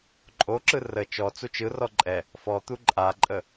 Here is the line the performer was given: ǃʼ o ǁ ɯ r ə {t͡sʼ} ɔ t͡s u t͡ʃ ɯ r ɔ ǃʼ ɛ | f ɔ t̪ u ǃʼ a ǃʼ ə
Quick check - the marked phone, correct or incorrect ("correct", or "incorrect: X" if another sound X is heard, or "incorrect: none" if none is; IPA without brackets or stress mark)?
incorrect: t͡ʃ